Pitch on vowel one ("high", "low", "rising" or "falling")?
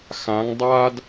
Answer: rising